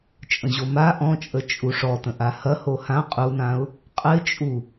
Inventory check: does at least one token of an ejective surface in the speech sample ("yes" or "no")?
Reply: yes